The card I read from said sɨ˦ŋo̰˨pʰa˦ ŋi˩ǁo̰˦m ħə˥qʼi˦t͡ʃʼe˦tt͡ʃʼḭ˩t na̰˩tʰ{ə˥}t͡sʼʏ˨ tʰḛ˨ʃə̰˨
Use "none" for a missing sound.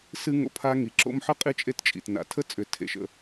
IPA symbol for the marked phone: ə˥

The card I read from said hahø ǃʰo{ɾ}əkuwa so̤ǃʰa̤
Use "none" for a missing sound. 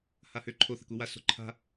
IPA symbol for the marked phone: θ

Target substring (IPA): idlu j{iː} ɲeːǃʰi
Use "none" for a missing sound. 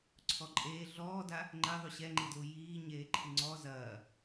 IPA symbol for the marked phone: iː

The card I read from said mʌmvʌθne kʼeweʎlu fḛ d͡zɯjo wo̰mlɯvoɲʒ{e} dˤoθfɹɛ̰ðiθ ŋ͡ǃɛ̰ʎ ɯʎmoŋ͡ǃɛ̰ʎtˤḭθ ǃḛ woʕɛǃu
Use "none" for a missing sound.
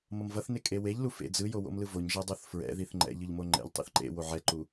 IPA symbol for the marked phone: ɛ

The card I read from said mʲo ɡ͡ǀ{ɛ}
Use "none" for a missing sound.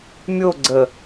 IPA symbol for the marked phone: ə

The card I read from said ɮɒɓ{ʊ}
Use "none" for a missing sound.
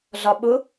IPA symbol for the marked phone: ʊ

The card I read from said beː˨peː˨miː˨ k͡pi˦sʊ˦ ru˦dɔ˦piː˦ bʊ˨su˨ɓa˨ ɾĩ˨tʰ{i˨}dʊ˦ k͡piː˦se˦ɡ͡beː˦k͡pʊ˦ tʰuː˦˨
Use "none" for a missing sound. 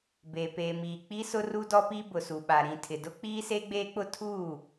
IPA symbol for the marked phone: ɪ˨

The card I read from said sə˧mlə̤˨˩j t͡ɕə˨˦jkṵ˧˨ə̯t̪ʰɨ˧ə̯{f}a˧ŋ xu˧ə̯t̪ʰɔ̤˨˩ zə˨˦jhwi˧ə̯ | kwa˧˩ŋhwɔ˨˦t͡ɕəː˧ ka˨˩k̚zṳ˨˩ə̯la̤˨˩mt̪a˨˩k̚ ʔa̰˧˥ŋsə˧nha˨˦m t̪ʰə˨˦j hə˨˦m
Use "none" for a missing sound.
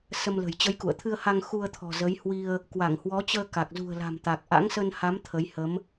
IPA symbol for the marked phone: h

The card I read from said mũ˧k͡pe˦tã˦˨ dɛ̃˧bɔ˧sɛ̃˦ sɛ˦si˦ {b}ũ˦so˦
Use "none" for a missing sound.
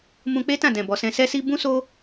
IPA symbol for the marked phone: b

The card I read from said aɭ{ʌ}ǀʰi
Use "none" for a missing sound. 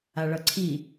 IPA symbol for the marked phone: ʌ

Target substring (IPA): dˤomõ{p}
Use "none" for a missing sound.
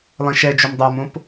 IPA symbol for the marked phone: p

